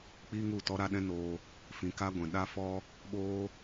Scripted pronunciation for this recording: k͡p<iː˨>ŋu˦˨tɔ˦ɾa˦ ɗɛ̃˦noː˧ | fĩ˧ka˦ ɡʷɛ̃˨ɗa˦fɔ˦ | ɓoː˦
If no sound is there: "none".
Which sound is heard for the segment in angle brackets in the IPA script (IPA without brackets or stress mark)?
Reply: iː˦